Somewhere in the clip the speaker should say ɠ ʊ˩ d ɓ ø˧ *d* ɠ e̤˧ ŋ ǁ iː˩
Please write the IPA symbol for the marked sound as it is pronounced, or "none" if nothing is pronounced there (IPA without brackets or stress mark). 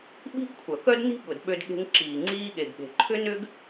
d